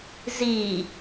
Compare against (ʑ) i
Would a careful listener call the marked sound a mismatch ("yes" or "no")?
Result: yes